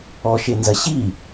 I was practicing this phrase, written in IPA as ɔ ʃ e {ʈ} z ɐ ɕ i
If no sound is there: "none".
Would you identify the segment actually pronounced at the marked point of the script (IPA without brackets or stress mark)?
n